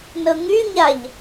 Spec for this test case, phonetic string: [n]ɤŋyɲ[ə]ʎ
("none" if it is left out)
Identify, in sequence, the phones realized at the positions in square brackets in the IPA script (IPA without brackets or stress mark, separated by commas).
n, a